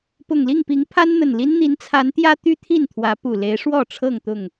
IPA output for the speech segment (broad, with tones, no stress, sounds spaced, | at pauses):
p ʊ˨˩ ŋ l i˥˨ ŋ p i˨˦ ŋ pʰ a˦ n n̪ ə˨˩ n l i˦ n n̪ i˨˦ n t͡sʰ a˨˦ n t̪ j ä˦ t̪ y˦ t̪ʰ i˥˨ n t̪ʰ w ä˨˦ p u˨˩ l e˨˦ ɪ̯ ʂ w ɔ˥˨ ʈ͡ʂʰ ɤ˥˨ ŋ t̪ ʊ˥˨ ŋ